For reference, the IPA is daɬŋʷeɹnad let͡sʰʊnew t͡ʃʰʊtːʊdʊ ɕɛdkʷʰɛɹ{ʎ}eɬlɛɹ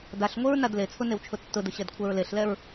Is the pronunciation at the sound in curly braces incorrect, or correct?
incorrect